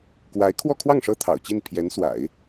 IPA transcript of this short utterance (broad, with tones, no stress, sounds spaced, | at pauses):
k w a˧˥ ɪ̯ kʰ w ɔ˥˧ kʰ w ɑ˥˩ ŋ ʂ ɤ˥ t̪ʰ ɑ̰˨˩ ʊ̯ t͡ɕ i˥˩ n pʰ j ɛ˧˥ n s w a̰˨˩˦ ɪ̯